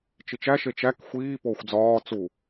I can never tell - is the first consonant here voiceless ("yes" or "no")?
yes